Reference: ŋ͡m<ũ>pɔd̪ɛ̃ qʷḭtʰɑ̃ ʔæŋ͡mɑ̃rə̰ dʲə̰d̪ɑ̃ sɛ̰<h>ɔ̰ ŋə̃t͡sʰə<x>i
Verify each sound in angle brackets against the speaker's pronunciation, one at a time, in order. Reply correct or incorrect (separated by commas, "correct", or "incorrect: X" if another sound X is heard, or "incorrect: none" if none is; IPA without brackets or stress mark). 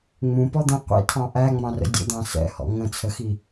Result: correct, correct, correct